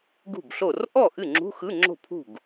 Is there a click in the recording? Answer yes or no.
yes